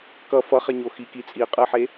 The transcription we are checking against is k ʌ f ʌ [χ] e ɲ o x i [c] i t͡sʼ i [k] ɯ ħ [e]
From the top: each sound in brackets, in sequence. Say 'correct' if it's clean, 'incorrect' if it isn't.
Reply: correct, incorrect: k, incorrect: qʼ, correct

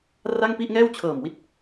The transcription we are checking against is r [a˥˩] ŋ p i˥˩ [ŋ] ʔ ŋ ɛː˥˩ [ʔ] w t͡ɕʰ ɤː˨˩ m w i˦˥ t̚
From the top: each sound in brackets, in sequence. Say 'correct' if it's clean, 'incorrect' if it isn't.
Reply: correct, incorrect: none, incorrect: none

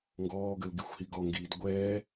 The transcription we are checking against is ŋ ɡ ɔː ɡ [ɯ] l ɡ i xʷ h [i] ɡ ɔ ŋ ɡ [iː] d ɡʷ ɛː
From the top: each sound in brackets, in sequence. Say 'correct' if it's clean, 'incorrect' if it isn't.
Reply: incorrect: ə, correct, correct

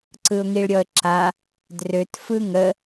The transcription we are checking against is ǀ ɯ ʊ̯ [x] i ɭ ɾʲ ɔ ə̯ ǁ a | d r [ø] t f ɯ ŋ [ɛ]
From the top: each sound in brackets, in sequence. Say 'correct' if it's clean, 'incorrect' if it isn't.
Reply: incorrect: ŋ, correct, incorrect: ə

